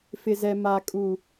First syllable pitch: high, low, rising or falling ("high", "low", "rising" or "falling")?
low